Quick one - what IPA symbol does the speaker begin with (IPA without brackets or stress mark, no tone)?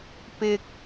p